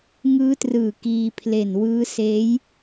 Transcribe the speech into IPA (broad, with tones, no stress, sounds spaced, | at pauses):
ŋ ɯː˦˥ t r ɯː˨˩ k iː˧ pʰ l e˨˩ n w ɯː˦˥ s eː˦˥ j